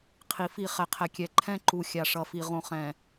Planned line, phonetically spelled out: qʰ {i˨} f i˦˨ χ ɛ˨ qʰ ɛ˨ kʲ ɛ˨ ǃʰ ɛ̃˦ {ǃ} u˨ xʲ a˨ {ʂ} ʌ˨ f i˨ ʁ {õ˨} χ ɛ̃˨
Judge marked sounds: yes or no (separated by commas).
yes, yes, yes, yes